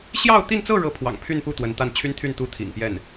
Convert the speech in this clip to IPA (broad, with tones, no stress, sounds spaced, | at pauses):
ɕ j ɑ˥˧ ʊ̯ t̪ i˥˧ n t͡s ɤ˥˧ ɻ ɤ˥˩ pʰ w ɑ̰˨˩ ŋ pʰ y˥˧ n p u˥˩ t̪ w ə˧˥ n t̪ a˥˩ n t͡ɕʰ y˥ n t̪ʰ y˥˩ n t̪ u˥ t̪ʰ ḭ˨˩ ŋ p j ɛ˥˩ n